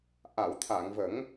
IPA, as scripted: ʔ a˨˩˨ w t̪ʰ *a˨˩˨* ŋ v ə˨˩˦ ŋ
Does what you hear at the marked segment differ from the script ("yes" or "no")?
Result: no